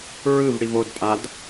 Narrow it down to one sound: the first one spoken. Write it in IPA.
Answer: ɹ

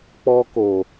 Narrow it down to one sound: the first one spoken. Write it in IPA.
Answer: k͡p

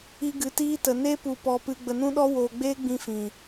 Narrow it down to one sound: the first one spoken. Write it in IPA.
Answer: i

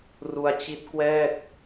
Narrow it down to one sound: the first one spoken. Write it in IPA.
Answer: r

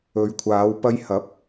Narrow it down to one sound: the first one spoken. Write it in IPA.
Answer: ɵ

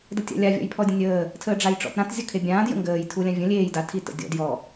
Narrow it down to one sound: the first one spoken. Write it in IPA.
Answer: d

